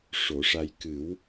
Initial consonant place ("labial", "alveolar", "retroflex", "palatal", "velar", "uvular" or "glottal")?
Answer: retroflex